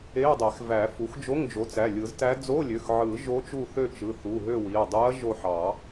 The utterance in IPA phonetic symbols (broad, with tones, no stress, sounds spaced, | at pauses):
e˧˥˧ ɐ̯ dˤ e˨˩˦ x v æ˨˩˦ f u˩˥ x d͡ʒ o˧˥˧ ŋ d͡ʒ o˩˥ t͡s æ˩˧˩ lʲ ɯ˨˩˦ z t æ˧˥ d͡z o˧˥˧ lʲ ø˩˧˩ x ʕ ɯ˨˩˦ ʒ o˧˥ t͡ʃ u˦˨ θ ø˦˨ t͡ʃ ɯ˩˧˩ θ u˩˧˩ ɦ ø˦˨ w i˩˧˩ ɐ̯ dˤ u˧˥ ɐ̯ ʒ o˦˨ ħ ɑ˨˩˦